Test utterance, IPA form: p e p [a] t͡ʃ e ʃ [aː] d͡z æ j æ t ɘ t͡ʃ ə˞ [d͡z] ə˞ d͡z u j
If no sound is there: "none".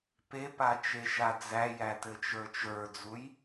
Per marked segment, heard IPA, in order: a, a, t͡ʃ

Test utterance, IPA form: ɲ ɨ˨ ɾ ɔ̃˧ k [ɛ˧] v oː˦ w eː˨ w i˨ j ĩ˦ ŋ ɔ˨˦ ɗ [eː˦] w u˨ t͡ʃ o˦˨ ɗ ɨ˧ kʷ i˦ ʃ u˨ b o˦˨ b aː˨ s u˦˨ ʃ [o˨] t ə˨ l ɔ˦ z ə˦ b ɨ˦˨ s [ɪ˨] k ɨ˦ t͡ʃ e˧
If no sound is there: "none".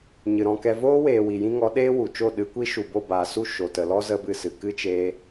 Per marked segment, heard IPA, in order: ɛ˧, eː˦, o˨, ɨ˨

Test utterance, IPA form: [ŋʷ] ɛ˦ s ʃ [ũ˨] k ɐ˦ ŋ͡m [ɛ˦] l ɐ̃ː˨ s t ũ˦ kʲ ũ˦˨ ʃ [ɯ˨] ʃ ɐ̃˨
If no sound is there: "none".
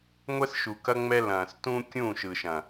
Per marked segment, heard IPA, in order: ŋʷ, u˨, ɛ˦, ɯ˨

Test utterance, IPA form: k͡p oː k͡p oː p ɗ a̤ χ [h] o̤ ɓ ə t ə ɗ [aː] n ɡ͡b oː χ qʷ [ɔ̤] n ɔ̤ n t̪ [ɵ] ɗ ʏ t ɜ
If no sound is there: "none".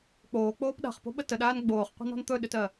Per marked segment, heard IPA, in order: p, aː, ə̤, ɵ

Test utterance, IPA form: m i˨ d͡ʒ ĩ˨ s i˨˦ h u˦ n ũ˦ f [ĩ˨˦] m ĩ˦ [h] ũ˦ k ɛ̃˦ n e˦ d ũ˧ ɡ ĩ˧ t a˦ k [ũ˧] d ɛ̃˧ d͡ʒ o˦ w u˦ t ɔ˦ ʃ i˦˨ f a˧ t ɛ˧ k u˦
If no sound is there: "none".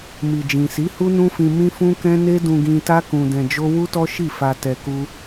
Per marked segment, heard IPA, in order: ĩ˧, f, ũ˧

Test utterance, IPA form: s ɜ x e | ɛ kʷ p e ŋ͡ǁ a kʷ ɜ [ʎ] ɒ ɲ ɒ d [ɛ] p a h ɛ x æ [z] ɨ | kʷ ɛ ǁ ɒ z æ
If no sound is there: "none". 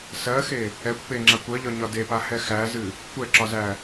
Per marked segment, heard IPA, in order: ʎ, e, z

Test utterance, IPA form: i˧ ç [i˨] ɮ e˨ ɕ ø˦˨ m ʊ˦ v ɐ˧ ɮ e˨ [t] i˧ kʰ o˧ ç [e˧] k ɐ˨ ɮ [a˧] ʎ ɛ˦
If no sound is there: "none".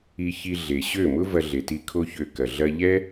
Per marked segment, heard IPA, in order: i˧, t, ø˧, ɐ˧

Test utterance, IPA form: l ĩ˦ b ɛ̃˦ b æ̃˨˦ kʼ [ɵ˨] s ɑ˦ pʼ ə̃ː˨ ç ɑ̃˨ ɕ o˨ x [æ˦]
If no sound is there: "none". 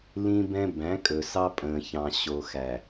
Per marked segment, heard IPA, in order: ɵ˨, æ˨

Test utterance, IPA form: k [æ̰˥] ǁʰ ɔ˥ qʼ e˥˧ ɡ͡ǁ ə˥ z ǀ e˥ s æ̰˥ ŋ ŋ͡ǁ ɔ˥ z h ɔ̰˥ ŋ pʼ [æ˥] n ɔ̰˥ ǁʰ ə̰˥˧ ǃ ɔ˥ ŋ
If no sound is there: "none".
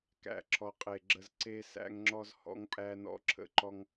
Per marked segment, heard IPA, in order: æ̰˥˧, æ˥

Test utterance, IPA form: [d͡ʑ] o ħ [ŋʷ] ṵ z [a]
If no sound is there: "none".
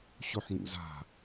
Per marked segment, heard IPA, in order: ɕ, ŋ, a̤

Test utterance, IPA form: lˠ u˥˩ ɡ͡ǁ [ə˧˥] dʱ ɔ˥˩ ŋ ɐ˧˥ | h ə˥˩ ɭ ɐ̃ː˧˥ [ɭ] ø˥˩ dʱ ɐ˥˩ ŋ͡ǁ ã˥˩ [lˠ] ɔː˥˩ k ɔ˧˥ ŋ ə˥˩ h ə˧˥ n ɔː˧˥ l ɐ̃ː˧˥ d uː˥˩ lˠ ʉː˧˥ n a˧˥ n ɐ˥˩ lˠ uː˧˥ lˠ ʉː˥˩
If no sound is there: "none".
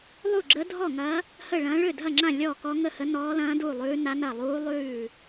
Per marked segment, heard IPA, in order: ə˧˥, ɭ, lʲ

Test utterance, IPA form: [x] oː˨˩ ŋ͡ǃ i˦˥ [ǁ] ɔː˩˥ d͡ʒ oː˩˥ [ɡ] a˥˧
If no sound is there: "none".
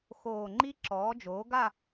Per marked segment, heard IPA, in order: x, ǁ, ɡ

